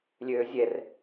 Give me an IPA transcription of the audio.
lʲ øː zʲ ɛ r

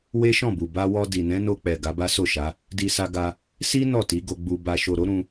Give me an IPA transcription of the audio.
w e˦ ʃ ɔ̃˦˨ b u˨ b a˧ w ɔ˧ d i˨ n ɛ̃˨˦ n o˧ k͡p ɛ˨ ɡ a˨˦ b a˦ s o˦˨ ʃ a˨˦ | d i˧ s a˧ ɡ a˧ | s i˦ n ɔ˦˨ t i˨˦ ɡ o˧ ɡ͡b u˧ b a˨ ʃ o˨ ɾ o˨˦ ɾ ũ˧

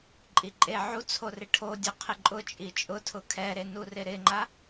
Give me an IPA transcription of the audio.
ǃʼ i ǃʼ e ʕ u t͡sʰ o r ɪ ʈʰ o dʲ ɔ qʰ ɪ ǃʼ ʊ t͡ʃʼ i t͡ʃʼ ʊ tʰ ʊ kʰ ɛ ɾ e n u r ɪ ɾ ɪ ŋ͡ǃ a

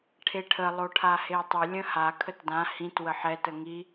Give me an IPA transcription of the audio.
ʈʰ e ʈʰ ə lˠ o ʈʰ a h e tˤ ə lʲ ə̃ h a kʰ ə t d ã h ĩ t w ə ħ ɛ t ə ŋ i

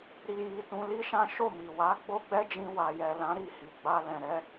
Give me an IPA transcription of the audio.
ɾ i˧ j i˧ t ũ˧ l i˦ ʃ ã˦ ʃ o˦˨ m i˨ w a˨˦ ɡ͡b o˦ ɡ͡b ɛ˦ d͡ʒ ĩ˧ w a˨ j ɛ˨ l ã˨˦ ɾ i˦˨ h i˨ ɡ͡b a˧ l ɛ̃˨ ɾ ɛ˨˦

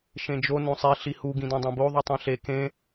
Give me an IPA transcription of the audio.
ʃ ẽ d͡ʒ o n õ sˤ i ɬ i h u ɡ ĩ d õ dˤ ẽ b o ðˤ u tˤ ẽ ɬ e k ẽ

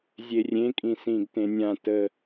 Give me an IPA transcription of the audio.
zʲ e rʲ ẽ kʼ ĩ s ĩː ɡ t ẽ nʲ ã t ə

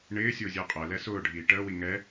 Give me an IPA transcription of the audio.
ɳ ɪː sʲ ʊː zʲ əː qʼ ɜ l ɛ s ʊː ɖʱ iː ʈ əː w i ŋ ɛ

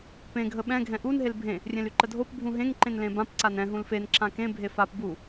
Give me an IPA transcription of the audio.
p ẽ ɡʱ ə ɓ ɛ̃ ɡʱ ɛ̃ ʔ u n ɦ e l bʱ ẽ | rʲ ẽ l y ǃ ə dʱ o p bʱ ũ ɦ ẽ ŋ ǃ ẽ n l ẽ b ã p ǀ a n ɛ̃ ɦ ũ l f e n ǁ ã k ẽ bʱ e f a p b u

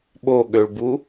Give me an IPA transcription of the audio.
ɓ o ɠ ø ɭ b u

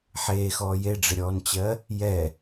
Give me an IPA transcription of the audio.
ħ eː x ɔː j e ɖ͡ʐ ɪ ɾʲ ɔː n t͡ɕ ɜ | j ɛ

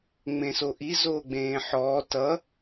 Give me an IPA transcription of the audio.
ŋ͡m ẽ s o ʔ i z oː ɡ͡b ẽː ħ ɔː t ʌ

